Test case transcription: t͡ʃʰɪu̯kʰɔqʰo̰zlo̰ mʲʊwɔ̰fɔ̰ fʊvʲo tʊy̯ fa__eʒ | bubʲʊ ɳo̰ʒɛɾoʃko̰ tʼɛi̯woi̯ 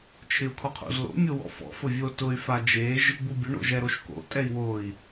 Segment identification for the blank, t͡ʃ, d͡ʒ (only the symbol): d͡ʒ